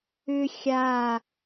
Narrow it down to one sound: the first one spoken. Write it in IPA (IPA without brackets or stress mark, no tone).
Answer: ʏ